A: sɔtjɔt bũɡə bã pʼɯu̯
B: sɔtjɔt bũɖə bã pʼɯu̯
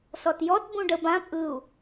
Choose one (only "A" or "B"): B